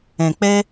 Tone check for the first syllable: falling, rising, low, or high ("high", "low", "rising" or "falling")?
low